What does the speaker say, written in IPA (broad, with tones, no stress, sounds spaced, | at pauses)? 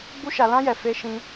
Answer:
ɡ͡b u˦ ʃ a˧ l ã˦ j ɛ˧ f e˦ ʃ ĩ˦